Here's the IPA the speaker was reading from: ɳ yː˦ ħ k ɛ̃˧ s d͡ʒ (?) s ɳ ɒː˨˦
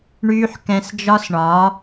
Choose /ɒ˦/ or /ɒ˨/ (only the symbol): ɒ˦